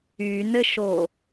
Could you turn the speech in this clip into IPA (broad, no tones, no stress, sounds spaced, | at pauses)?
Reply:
y n ɘ ʃ o